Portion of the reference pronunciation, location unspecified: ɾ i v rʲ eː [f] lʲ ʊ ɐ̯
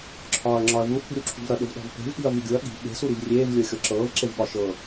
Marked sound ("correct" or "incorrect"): incorrect